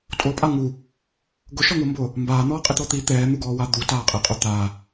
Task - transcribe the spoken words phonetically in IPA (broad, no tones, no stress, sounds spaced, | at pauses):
tʼ o pʼ a ŋ u | ɡ ʊ ʃ ɔ ŋ ʊː m b ʊː | m b aː n̪ ɔː qʼ ɪ t̪ ɔ t̪ i t̪ ɛː n̪ u ɡ ɔː w a d̪ u t aː qʼ e qʼ o t̪ a